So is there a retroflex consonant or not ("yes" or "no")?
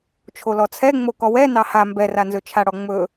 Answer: yes